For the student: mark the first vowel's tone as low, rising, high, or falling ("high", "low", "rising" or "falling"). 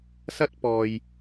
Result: high